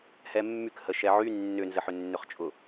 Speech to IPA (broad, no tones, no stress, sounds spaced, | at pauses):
h ɛ mː y k h ə ʃ ɛ ʕ y nː ʏ n z ə ħ ʏ nː ʏ χ t͡ʃʼ ʊ